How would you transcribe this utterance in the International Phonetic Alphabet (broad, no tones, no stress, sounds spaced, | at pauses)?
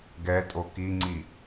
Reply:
ɡ ɛ tʼ o k i ŋ͡ǀ i